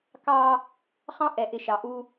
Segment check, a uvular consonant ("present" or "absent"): present